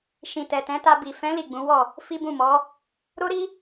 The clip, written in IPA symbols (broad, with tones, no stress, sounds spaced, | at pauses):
ʃ ĩ˨ t ɛ˨ t ɛ̃˨˦ t a˧ b i˨ f ɛ̃˨˦ l i˦˨ ɡ͡b ũ˨˦ w ɔ˦˨ | f i˦ b ũ˦˨ m ɔ˨˦ | ɾ o˦ ɾ i˦